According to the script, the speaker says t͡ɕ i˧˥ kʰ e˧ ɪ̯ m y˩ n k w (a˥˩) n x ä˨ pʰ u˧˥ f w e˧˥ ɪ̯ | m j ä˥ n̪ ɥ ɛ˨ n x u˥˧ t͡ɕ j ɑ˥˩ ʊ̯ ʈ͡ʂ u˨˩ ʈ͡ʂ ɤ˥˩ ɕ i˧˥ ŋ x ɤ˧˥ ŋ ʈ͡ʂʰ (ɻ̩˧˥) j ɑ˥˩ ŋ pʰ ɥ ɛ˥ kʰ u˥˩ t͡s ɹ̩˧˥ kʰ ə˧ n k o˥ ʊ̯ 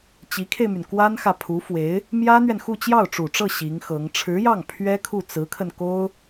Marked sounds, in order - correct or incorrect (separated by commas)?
incorrect, correct